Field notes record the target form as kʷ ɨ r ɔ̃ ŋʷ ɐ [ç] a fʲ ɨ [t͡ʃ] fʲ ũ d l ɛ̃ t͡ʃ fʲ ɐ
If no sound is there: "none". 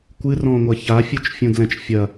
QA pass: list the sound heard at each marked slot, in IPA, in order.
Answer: ç, t͡ʃ

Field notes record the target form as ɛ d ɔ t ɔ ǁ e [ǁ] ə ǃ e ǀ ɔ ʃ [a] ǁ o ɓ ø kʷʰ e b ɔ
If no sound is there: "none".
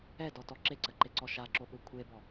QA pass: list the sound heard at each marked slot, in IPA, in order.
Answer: ǀ, a

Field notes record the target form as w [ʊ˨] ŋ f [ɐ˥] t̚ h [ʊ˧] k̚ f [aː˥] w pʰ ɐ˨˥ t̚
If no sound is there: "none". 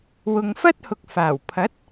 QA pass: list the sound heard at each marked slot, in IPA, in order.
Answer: ʊ˨, ɐ˥, ʊ˨, aː˨˩

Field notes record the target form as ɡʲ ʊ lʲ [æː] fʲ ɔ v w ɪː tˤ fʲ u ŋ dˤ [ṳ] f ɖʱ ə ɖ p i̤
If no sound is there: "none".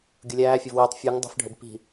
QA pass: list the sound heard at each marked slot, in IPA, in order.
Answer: æː, ṳ

